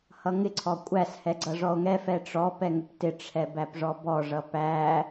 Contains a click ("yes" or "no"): yes